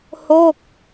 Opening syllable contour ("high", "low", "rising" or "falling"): falling